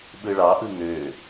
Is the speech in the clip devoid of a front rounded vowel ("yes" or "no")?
no